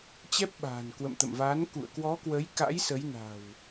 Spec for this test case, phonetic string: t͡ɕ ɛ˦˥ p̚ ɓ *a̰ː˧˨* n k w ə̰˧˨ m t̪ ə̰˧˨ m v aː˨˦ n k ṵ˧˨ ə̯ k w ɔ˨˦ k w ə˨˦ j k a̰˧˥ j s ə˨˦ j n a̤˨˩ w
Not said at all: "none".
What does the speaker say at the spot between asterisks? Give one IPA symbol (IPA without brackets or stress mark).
a̤ː˨˩